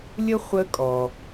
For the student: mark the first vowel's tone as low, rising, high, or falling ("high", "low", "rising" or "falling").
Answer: high